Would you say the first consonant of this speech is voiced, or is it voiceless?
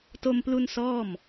voiceless